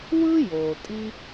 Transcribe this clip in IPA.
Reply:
w ɯ˥ j oː˩ tʼ i˦

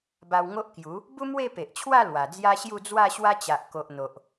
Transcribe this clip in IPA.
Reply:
b a˧ w ŋ o˦ ʔ k j u˨˦ | b u˦ m w e˥˧ p e˨ ʔ t͡ɕʰ w a˥˧ l w a˨˩ d͡z j a˦ ɕ j u˥˧ d͡z w a˥˧ ɕ w a˦ t͡ɕ a˨ ʔ k o˨ ʔ n̪ o˨ ʔ

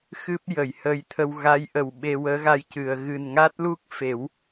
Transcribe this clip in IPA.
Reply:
x ɨ˦˥ p̚ j ə˨˩˨ j h əː˧ j t̪ʰ ə˧ w ɣ a˧˥ j ʔ ə˨˩ w ɓ e˧ w əː˧˥ ɣ a˧ j c ɨ˨˩˨ ə̯ ɣ ɨ˨˩ n ŋ a˦˥ t̚ l u˦˥ k̚ f e˨˩˦ w

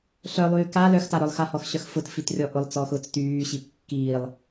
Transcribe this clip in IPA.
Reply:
ɬ œ lˠ yː k a l œ x t a ɾ œ lˠ x a h ɔ x ɕ œ x f ʊ t f i t rʲ ɔ ʔ ʊ lˠ t͡s ɔ x ʊː t͡s t yː ɕ i p kː iː lˠ

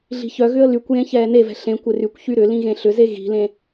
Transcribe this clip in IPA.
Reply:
ɮ i̤ ç œ ɣ ʏ ə̯ l y kʷ j ẽ ç ɛː n e v ɛ̤ ɬ ẽ kʷ ɪ r y kʷ ç y ɾ ʏ l ĩ ɣ ẽ ɬ ʏ z e ɣ i̤ l ẽ

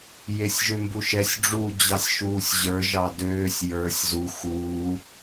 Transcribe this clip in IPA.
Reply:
j e sʲ ʒ ø m b u ʃ ɛ sʲ ɖ͡ʐ uː d͡ʑ ɑ sʲ ʃ uː sʲ ʑ ə˞ ʒ ɑ d øː sʲ j ə˞ sʲ z u x uː

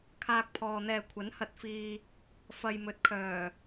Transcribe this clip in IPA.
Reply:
kʰ aː˧ k̚ pʰ ɔː˨ n̪ ɛː˧ kʷʰ ɐ˨˥ n h ɐ˧ t̚ f iː˧ | f ɐ˨ j m ɵ˨ t̚ kʰ œː˨˩

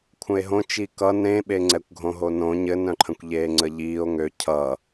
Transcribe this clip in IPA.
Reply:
kʷʰ ə̃ e̯ ɦ õ t͡ʃ i k ʌ n ɾ ẽ ɓ e ŋ͡ǀ ɛ kʷ ɡʱ õ ɦ o n õ ɲ ɘ n œ̃ ǃʰ ə̃ kʷ ʎ eː ŋ͡ǀ ə ʎ iː o̯ ŋ ø cʰ ʌ

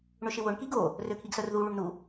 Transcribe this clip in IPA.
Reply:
ɳ ʏ ʃ ɪ w ʊ ɳ k i ɡ o | r ø kʰ i ɡ s œ r ð u ɭ y ɳ n u

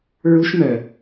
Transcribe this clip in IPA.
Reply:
ɹ u ʃ m œ

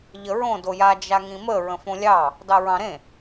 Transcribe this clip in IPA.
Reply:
ʎ ə ɹ õ d o j a d͡ʒ a ŋ ĩ m ə ɹ ə̃ f õ lʲ ɑ | d ɑ ɹ ɑ̃ ɾ ẽ

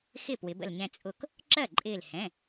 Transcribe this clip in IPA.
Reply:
x ɪ˥˩ p w ɪ˩˧ b ə̰˧˩ l ɲ ɛ̃˧˩ t͡sʼ ʊ˧˩ k | ǁ ɜ˥˩ ǃʼ ɪː˧˩ l h ɛ̃˩˧˩

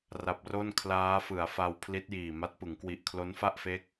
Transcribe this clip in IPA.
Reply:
r a˨˩ p̚ r o˥˩ n kʰ l aː˦˥ f ɯ˩˦ a̯ f a˧ w pʰ l i˦˥ t̚ j iː˨˩ m a˦˥ t̚ p ɯ˩˦ ŋ k w i˨˩ ʔ kʰ l o˦˥ n f a˥˩ ʔ f e˦˥ k̚

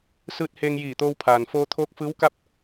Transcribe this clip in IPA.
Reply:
s ɯː˧ t̚ h eː˧ ŋ j iː˧˩ t̪ oː˧ w pʰ aː˩ n f oː˧ t̪ʰ oː˧˥ k̚ f ɯː˧˥ w k a˥˨ p̚

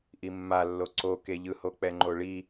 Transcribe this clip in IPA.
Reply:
ʔ i mː a lː o ǀ o k e ʎ ɯ h o k͡p ɛ ŋ͡ǃ o ɭ i

